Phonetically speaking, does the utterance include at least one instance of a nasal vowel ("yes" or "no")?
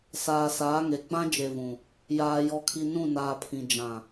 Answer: yes